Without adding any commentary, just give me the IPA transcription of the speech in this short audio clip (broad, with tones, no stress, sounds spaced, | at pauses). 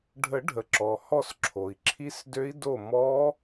ɖʱ ə˨˩˦ ɖʱ ə˩ ǁ ɔ˩ h ɔ˦˨ s ǁʰ o˩ i̯ ǁʰ i˦˥ s d ø˦˥ i̯ d o˦˨ m ɔ˦˥